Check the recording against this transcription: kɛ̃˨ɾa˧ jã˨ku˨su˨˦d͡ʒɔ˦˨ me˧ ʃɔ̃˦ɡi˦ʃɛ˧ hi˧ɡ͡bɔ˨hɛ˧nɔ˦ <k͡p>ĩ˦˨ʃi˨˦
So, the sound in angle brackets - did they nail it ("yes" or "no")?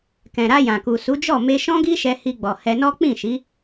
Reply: yes